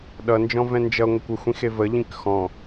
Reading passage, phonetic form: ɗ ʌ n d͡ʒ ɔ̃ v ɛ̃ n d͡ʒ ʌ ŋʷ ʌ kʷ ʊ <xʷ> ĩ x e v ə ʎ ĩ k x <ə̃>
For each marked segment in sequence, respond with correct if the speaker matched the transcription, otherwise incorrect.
correct, incorrect: ɔ̃

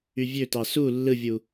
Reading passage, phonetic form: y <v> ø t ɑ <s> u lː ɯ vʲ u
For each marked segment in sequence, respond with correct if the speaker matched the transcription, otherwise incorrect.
incorrect: vʲ, correct

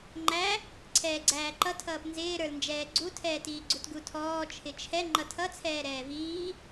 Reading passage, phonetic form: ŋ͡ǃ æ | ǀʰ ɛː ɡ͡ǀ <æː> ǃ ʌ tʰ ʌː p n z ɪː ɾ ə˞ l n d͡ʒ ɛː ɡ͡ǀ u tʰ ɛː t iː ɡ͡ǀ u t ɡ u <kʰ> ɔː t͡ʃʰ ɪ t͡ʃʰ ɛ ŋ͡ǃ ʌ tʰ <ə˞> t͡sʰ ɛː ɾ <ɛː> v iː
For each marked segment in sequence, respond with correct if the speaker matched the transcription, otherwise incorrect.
correct, incorrect: tʰ, incorrect: ʌ, correct

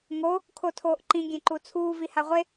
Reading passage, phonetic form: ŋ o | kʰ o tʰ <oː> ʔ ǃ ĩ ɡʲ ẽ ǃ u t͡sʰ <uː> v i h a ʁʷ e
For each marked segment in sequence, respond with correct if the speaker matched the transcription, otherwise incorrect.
correct, correct

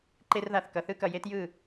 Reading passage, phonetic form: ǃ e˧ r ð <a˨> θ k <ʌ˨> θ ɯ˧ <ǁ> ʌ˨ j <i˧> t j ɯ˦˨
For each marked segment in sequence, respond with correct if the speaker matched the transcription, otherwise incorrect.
correct, correct, incorrect: k, incorrect: e˧

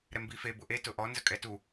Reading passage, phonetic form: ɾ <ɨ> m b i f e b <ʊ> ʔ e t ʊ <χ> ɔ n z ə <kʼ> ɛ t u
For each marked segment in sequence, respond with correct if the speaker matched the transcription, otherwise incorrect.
incorrect: ɛ, correct, incorrect: ʔ, correct

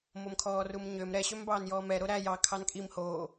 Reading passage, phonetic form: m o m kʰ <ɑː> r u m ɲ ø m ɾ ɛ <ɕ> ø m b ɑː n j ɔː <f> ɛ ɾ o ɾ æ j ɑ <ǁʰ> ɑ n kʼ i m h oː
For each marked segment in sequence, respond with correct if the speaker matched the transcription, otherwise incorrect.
incorrect: ɔː, correct, incorrect: m, incorrect: kʰ

